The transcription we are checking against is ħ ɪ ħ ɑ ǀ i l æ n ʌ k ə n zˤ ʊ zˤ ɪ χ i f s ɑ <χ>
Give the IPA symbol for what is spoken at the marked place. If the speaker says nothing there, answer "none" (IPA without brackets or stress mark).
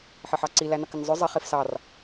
r